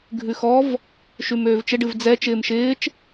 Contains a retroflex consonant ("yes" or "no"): yes